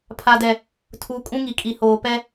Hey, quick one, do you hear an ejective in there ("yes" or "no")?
yes